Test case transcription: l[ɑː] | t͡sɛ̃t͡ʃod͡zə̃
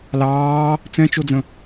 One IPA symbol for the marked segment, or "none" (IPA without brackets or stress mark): ɑː